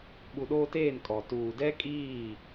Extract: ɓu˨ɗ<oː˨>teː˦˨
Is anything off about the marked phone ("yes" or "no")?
yes